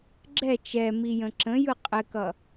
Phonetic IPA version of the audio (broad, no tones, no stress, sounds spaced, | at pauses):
ɡ͡ǁ ɛ t͡ʃ ɛ m i j ə̃ ǁ ə̃ j ɯ qʼ ɘ k ʌ